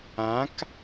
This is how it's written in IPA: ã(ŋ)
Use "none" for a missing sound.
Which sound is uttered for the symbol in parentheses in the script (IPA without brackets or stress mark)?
k